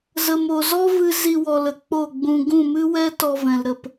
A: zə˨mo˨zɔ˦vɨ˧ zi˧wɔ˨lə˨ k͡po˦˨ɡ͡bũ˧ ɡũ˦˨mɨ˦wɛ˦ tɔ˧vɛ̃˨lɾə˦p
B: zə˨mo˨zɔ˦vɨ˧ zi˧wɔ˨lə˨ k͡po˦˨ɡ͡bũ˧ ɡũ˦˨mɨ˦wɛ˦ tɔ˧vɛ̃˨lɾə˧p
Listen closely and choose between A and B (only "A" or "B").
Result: B